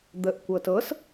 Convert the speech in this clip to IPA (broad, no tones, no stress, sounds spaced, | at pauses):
d̪ ə ʔ kʷ ɤ t ɤ s